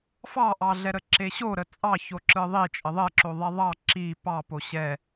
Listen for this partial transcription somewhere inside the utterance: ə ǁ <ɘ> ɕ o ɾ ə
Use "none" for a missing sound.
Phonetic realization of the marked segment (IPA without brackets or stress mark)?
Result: e